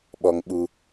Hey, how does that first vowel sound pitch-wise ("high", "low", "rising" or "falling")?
low